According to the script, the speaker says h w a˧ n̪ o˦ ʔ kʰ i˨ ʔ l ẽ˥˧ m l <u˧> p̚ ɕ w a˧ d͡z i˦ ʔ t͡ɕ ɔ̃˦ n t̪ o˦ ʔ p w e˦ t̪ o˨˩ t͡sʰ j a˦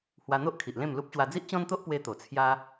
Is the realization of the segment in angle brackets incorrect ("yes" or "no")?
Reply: yes